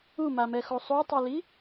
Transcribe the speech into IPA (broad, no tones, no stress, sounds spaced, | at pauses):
u m a m ɛ x o sˤ o tˤ i l i